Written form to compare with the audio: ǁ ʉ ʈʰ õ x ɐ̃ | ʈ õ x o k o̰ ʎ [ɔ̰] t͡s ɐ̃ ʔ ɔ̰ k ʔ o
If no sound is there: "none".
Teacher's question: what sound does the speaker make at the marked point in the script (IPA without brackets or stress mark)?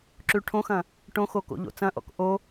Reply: o̰